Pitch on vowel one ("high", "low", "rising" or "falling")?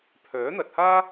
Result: rising